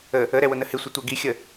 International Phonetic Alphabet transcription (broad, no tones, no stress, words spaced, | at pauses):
ə | əɾɛwʊnə hɪsʷɪtʷæ ɡixʲə